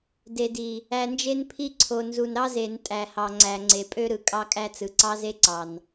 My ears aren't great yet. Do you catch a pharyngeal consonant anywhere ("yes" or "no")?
no